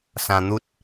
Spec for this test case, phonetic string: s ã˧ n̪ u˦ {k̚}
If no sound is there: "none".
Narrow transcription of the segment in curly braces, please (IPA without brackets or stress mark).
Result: t̚